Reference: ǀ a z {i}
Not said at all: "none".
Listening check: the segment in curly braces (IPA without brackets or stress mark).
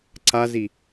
i